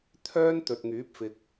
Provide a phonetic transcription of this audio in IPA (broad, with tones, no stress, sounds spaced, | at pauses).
t̪ʰ œː˥ n t̪ ɵ˨ t̚ ŋ yː˨˥ p̚ f ɪ˨ k̚